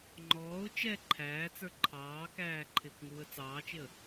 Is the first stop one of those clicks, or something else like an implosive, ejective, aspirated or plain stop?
click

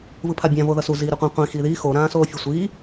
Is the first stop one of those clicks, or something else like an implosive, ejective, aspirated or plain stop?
aspirated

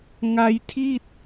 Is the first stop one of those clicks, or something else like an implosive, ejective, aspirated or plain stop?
aspirated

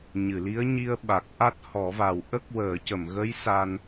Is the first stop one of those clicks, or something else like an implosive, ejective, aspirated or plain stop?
implosive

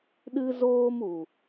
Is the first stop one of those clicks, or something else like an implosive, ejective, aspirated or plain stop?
implosive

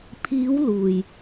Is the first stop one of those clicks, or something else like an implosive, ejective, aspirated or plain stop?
aspirated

